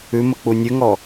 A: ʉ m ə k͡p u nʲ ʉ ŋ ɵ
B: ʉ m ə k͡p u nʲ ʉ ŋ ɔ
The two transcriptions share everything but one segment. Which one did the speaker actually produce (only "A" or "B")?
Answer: B